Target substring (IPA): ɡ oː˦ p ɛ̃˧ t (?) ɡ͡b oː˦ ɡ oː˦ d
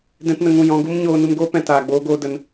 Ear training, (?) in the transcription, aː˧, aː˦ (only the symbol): aː˧